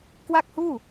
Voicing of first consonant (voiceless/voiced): voiceless